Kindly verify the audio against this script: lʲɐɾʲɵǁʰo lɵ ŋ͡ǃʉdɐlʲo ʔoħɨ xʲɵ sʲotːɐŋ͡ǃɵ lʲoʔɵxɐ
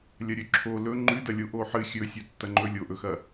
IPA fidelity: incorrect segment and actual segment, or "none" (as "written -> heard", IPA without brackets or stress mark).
none